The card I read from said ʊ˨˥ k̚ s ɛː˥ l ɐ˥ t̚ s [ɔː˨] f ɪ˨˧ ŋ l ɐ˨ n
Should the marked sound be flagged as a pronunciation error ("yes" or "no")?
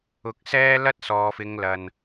no